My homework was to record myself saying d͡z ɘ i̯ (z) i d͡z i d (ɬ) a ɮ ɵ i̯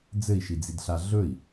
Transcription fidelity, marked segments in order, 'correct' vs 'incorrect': incorrect: ʃ, correct

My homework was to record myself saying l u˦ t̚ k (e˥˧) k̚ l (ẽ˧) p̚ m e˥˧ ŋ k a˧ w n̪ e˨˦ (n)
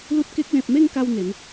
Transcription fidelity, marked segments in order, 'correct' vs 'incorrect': incorrect: e˦, incorrect: ẽ˨, correct

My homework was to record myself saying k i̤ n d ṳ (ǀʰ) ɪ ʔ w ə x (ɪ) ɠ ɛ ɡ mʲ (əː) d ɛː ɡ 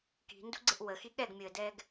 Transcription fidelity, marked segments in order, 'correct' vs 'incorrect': incorrect: ɡ͡ǀ, incorrect: i, correct

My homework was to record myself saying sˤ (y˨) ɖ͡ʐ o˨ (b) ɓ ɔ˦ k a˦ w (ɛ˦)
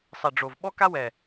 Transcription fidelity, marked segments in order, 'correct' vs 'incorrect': incorrect: e˨, incorrect: v, incorrect: ɛ˨

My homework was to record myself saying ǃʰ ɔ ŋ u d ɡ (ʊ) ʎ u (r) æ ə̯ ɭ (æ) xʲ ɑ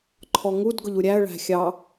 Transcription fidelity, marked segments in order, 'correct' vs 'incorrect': correct, incorrect: ɾʲ, incorrect: æ̤

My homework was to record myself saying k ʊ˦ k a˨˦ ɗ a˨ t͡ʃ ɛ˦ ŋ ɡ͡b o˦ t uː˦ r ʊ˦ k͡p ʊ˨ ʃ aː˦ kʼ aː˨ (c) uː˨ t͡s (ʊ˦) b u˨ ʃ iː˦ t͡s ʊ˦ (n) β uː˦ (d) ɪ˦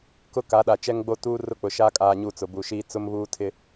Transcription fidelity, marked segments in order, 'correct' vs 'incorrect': incorrect: ɲ, incorrect: ʊ˨, incorrect: m, incorrect: tʰ

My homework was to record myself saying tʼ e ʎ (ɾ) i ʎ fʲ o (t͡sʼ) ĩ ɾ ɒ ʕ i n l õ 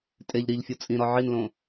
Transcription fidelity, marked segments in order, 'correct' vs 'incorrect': correct, correct

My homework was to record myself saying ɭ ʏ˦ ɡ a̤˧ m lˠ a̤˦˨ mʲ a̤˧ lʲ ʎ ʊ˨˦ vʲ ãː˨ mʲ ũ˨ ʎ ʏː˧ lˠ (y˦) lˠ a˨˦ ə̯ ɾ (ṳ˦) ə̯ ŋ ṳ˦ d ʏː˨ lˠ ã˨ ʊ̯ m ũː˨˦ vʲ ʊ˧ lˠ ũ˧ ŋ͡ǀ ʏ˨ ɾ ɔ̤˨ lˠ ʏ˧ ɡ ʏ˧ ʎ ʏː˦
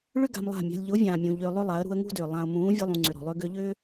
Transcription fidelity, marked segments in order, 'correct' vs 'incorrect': incorrect: ʏ˦, incorrect: ṳ˧

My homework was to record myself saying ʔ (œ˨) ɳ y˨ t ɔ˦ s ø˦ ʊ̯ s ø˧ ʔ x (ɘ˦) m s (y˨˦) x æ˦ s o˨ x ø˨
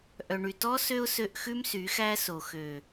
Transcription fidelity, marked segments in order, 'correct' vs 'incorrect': correct, incorrect: ʉ˦, correct

